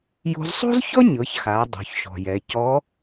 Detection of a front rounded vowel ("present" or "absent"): absent